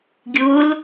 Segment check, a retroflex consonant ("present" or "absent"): absent